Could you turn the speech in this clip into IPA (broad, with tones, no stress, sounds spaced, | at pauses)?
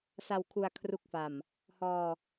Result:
s a˧ w kʰ u˧ a̯ kʰ r u˦˥ k̚ f a˨˩ m | h ɔː˧